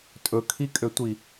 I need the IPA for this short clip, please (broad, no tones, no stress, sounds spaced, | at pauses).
tʼ ɵ kʰ i kʼ ø tʷ i